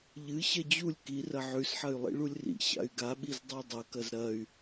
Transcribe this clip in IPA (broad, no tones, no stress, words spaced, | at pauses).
ʎɨ ɕɐd͡ʑulʲ kirɐ ʕʉsħɐy̯ lˠḭɭulʲrḭ ɕa̰y̯ɡaɓiz dˤadˤɐkɐz ɾɐy̯